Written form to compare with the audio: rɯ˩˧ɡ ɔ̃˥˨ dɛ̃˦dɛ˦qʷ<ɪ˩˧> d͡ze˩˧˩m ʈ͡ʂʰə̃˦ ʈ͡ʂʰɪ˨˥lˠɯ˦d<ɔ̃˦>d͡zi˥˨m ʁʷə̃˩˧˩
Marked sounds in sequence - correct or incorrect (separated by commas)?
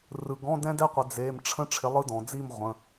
correct, incorrect